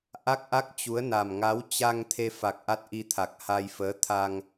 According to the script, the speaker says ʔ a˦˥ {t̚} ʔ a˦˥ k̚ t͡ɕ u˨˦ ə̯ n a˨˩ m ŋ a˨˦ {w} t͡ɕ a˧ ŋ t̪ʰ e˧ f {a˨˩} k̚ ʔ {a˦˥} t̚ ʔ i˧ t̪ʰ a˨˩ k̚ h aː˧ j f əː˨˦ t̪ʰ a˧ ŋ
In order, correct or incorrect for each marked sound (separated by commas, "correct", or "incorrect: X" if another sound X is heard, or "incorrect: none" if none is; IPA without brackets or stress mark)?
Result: incorrect: k̚, correct, correct, correct